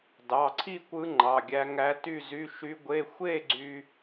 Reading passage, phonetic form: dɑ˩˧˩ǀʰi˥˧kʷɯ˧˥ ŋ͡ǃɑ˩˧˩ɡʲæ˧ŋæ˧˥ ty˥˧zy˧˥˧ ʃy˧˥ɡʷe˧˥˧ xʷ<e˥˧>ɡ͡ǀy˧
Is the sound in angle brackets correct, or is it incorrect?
correct